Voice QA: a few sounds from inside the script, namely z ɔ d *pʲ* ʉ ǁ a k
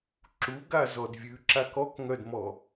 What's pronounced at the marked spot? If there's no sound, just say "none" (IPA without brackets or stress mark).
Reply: vʲ